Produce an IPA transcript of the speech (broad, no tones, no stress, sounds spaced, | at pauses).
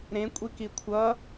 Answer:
ɾ ẽ kʷʼ i k i kʷʰ ʌ